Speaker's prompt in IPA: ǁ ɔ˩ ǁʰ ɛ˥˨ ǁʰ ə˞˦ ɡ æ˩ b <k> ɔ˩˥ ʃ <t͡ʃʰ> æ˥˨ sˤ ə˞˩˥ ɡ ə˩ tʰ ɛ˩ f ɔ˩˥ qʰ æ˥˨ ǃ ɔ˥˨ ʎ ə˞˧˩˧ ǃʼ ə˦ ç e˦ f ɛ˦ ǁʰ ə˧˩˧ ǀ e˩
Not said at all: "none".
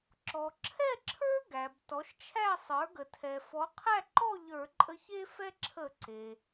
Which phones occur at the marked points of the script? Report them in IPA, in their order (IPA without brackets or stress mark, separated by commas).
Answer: t, t͡ʃʰ